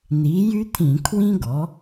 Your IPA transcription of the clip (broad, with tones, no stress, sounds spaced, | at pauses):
n̪ i˩˥ j y˥ t̪ʰ ĩ˧˩˧ kʰ w ĩ˥ ɡ ɔ˩˥